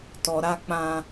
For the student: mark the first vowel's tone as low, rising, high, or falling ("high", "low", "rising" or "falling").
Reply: low